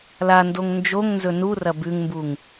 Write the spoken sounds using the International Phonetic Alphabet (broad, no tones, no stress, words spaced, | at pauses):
landoŋ nd͡ʒoŋnzɵ nurɐ bʉŋmbuŋ